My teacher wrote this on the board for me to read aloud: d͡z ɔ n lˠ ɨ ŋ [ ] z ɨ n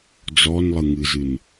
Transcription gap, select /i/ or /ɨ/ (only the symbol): ɨ